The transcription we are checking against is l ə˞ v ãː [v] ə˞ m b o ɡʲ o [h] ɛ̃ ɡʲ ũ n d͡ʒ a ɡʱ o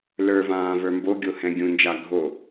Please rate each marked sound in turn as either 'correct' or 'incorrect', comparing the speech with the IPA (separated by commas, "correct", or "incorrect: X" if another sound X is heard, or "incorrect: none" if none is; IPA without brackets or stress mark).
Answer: correct, correct